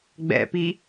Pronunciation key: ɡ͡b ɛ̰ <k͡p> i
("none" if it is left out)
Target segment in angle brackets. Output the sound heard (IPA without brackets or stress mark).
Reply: p